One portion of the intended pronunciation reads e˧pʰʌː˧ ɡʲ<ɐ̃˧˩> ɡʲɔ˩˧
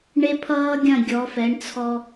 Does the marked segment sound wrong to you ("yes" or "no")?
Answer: no